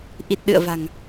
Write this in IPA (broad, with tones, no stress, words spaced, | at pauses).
ʔi˨˩t̚ɗɨ̰˧˨ə̯va̤˨˩ŋ